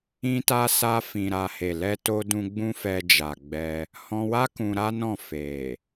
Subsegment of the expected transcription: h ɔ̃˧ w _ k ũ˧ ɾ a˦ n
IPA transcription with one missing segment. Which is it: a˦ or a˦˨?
a˦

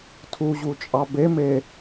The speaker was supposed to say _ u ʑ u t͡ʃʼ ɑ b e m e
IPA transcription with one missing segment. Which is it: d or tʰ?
tʰ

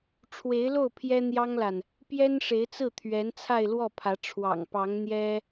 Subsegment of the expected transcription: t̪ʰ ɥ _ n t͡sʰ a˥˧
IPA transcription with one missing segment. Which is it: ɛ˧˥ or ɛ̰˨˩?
ɛ˧˥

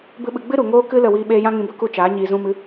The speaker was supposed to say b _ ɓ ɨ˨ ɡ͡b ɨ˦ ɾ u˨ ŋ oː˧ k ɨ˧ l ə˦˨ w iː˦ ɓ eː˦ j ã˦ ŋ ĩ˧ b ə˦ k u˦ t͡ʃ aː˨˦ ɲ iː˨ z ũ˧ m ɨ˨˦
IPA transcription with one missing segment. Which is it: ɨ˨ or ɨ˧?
ɨ˧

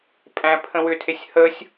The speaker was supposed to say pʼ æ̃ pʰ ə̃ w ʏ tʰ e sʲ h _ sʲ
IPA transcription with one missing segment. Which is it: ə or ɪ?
ə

